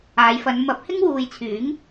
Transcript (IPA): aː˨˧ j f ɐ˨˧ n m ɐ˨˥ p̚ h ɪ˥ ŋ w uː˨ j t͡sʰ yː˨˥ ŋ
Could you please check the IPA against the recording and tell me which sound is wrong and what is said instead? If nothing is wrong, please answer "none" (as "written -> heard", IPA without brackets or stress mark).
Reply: none